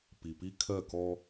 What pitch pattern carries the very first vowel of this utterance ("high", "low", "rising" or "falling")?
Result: low